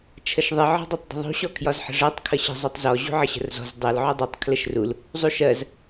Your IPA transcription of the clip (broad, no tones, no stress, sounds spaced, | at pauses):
t͡ʃʰ ə ʃ ðˤ ɪ ʕ ɔ̤ dˤ ɜ tˤ dˤ ə̤ ðˤ ṳ ɕ ɔ kʰ j ɒ z ħ ə̤ ʐ ɜ tˤ kʰ ə ɕ ə̤ zˤ u tˤ z ɔ ʑ ṳ ʕ ə ɕ ə̤ r z ɔ̤ z dˤ ɜ l ʕ u dˤ u tˤ kʰ l ə ʃ r u l | zˤ u ʃ ɜ z